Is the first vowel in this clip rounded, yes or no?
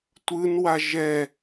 no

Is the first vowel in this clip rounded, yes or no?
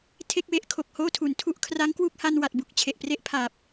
no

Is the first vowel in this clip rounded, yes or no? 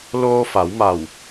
yes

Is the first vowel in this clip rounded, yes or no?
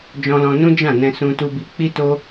yes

